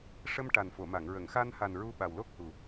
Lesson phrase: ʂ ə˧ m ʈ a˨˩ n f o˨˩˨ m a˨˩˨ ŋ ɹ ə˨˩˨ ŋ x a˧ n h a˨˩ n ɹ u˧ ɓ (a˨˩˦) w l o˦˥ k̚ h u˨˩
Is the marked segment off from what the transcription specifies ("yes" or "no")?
yes